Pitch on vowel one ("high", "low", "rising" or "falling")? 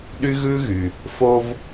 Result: high